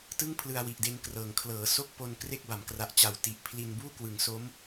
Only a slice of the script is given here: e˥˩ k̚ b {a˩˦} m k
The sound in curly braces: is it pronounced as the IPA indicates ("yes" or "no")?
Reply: yes